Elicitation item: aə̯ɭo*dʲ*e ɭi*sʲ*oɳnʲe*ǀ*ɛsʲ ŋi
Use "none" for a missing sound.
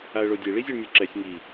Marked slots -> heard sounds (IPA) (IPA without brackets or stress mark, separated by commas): dʲ, zʲ, ǁ